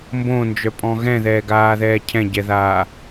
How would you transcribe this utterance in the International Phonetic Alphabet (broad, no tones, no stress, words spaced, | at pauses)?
mbõnd͡ʒœpʼɔ̃ ɣɛ̃ðɛːɡaːðɛː cʰɛ̃ɟɛðaː